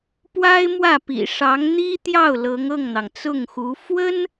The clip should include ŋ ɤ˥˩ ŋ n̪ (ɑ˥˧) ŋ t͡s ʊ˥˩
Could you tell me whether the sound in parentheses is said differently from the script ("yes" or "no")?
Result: yes